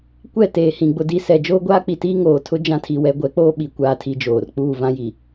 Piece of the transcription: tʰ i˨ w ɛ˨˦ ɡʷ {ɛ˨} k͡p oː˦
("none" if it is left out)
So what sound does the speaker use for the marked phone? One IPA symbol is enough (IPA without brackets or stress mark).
ɛ˨˦